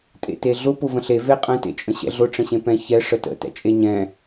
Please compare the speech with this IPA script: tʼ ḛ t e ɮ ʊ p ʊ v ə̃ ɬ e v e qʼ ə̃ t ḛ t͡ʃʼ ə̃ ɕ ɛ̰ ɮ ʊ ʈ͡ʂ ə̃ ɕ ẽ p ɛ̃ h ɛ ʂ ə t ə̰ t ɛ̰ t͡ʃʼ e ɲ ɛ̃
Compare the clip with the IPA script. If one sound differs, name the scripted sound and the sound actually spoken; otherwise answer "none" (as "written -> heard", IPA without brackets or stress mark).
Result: h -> ç